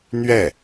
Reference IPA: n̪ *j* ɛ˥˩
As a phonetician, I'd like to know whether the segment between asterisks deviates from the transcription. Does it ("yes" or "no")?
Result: yes